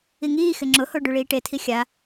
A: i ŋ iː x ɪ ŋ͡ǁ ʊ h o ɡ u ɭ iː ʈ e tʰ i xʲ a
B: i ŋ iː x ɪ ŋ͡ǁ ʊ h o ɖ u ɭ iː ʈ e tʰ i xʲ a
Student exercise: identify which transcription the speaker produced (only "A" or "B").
B